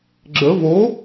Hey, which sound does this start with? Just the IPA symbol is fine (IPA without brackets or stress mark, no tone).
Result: ɡ͡ǁ